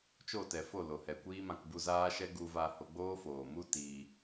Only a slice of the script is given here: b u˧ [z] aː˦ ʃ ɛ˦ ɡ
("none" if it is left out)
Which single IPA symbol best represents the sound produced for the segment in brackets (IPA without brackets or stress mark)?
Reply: z